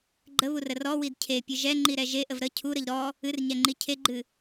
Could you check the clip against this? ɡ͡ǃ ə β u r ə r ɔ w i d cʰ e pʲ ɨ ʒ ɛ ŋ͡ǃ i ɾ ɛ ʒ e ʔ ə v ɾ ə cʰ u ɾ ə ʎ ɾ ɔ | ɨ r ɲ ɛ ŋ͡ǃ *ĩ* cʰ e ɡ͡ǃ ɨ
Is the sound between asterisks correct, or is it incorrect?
incorrect